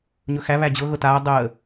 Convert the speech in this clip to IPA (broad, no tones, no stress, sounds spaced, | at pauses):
ɲ ɵ x æ β æ d͡ʑ ɤ ɣ ɤ t aː dˤ əː